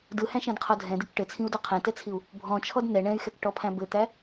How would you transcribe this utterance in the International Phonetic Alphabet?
d ɯ h æ̃ ʃ ɛ̃ d qʰ ɔ dʱ ɛ̃ d i k ʈ ɘ t͡sʰ ĩ u̯ d ɔ qʰ ɛ̃ t ɛ t͡sʰ i u̯ | bʱ ɔ̃ t͡ʃʰ ɔ d n ɛ ɳ ɛ̃ y̯ x ɛ k ʈ ɔ pʰ æ̃ b ɘ t̪ æ

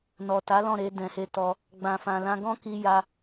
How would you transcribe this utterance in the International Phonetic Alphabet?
n ɔ˨ t a˨˦ l ɔ̃˦˨ ɾ e˧ d ɛ̃˨ h e˧ t ɔ˧ | ɡ͡b ã˨ f ã˨ l ã˧ ɡ ɔ̃˦ k i˧ j a˧

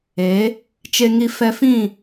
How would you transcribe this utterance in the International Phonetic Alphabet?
e˨˦ | t͡ʃ e˧ ŋ i˧ f ɛ˧ f ĩ˦˨

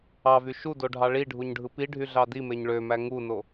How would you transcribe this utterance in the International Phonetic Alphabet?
ɑ v y ʃ u d o ɖʱ ɑ ɭ i ɖʱ u ɲ ɖʱ ɯ p i ɖʱ y ɮ ɑ d i m e ɲ ɭ ø m æ ŋ u n o

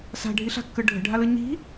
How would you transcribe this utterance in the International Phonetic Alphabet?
s a̤ ɖʱ i ɬ a̤ kː ɯ ɖʱ ə̤ ɖʱ a l ɯ ɲ i̤

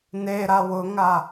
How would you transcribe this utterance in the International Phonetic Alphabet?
n e ɾ a w ʊ ŋ a

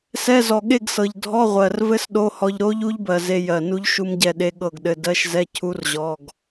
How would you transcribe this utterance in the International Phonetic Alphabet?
s ɛ˧˥˧ z ɔ˨˩ ɠ e˥˨ ɡ s ɤ˨˩ ʎ dʱ ɔ˧˥˧ ʁʷ ɜ˨˩ r v ɘ˦˥ s ɗ o˧˥˧ h ɔ˧ ʎ ɾ o˦˥ ʎ u˦˥ ʎ b ɜ˨˩ z e˧ j ɜ˨˩ n u˦˥ ʎ ʃ u˦˥ m ɟ ɛ˥˨ ɗ e˦˥ ɠ ɤ˥˨ ɡ ɗ ɘ˧˥˧ d ɜ˧˥˧ ʃ z ɛ˧˥˧ cʰ u˦˥ r ʑ ɔ˧˥˧ ɡ

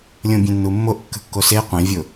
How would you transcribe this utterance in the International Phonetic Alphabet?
lʲ õ bʲ ẽ nː u mː o ʔ kː ə̤ kː o s e qʷ ẽ vʲ ʊ

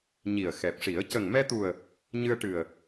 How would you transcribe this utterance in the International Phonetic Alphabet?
ɲ i˨˩ ə̯ x ɛ˨˩ p̚ ʂ i˨˩˦ ə̯ c ə˨˩ ŋ m ɛ˧ t̪ u˨˩ ə̯ | ɲ ɨ˧ ə̯ ʈ ɨ˨˩ ə̯

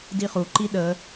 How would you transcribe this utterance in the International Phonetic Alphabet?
d i χ u ǃ i ɗ ə

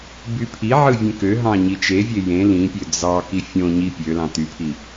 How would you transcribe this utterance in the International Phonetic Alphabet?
b y pʰ i ʕ ɯ vʲ ẽ k ø ɦ ɑ̃ ɲ i t͡ʃ e vʲ e j ẽ l ĩ pʲ ø d͡z ɑ k i fʲ õ ɲ i pʲ ø l ɑ̃ t y pʰ i

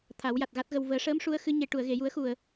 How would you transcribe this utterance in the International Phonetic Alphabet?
t̪ʰ a˨˩˦ w j a˨˩ t̚ ɣ a˦˥ t̚ ɣ ə˧ w v əː˨˩˦ ʂ əː˧˥ m ʂ u˧˥ ə̯ x ɨ˧˥ ɲ e˨˩ ʈ u˨˩˨ ə̯ ɣ e˨˩˨ j u˨˩˦ ə̯ x u˨˩ ə̯

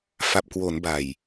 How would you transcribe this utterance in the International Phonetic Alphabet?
f a˨˩ p̚ k w o˩˦ n b a˨˩ j

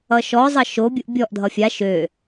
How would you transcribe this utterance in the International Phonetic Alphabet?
ʌ ʃ ɔ zˤ ʌ ʃ o bʲ u ʔ bʲ ɔ ʔ dʱ ʌ fʲ a ʃ ø

